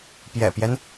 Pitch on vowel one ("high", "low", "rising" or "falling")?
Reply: low